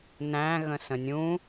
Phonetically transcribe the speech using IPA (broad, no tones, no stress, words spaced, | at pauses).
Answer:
næ̃ ɣə̃sə̃nʲũ